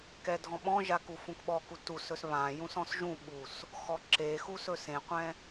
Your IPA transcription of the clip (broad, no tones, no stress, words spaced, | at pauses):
kɛdʱɔ̃ɓɔ̃ʒa kufũkɓɔku tusɵs βã jũsɔ̃sʒũɓus | xɔǁexu sɵsẽqʷɛ̃